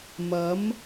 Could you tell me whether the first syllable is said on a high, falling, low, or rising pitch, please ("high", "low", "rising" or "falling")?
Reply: rising